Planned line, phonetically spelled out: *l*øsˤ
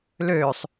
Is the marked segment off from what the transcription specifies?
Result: no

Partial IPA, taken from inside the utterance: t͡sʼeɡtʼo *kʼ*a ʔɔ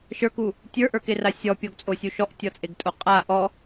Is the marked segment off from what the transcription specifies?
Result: yes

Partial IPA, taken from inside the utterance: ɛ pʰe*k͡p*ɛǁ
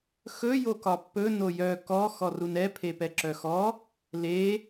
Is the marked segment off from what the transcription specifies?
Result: yes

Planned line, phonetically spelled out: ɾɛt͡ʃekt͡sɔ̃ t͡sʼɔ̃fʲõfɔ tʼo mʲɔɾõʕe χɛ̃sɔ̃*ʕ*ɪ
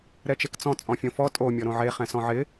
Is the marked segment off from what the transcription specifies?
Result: no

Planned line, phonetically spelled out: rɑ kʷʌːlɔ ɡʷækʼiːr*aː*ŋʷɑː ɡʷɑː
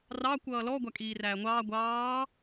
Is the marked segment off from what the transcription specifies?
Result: yes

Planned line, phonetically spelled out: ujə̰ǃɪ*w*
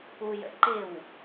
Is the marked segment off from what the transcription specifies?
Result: no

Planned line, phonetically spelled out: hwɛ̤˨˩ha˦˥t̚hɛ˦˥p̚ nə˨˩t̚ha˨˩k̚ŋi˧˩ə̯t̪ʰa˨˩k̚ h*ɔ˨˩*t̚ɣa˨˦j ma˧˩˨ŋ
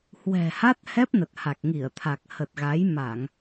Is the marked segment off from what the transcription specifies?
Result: yes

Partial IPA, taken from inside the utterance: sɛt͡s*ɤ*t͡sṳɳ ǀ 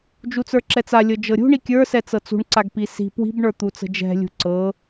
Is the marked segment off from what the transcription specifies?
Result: no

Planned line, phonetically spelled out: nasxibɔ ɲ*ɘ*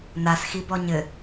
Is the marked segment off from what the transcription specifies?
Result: no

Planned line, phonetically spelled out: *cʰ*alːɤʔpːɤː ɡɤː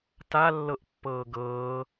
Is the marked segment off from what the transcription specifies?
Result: yes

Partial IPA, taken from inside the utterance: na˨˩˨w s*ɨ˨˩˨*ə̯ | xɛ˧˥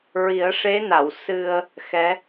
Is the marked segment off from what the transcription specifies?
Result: yes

